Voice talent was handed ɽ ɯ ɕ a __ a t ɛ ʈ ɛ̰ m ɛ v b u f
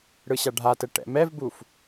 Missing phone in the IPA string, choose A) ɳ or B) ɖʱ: B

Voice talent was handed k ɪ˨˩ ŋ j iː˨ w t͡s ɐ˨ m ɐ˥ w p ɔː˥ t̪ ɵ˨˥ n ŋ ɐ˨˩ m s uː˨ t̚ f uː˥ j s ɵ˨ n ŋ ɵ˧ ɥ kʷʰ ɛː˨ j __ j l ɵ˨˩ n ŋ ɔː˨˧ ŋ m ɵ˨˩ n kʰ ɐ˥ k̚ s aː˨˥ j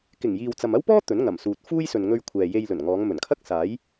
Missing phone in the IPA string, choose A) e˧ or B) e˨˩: A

